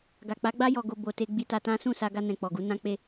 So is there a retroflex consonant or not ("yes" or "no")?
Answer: no